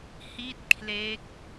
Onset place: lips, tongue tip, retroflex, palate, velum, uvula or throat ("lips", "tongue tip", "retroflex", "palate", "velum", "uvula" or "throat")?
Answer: throat